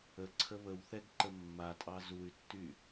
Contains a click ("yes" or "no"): yes